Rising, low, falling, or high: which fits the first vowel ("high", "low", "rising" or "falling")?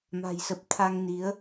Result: low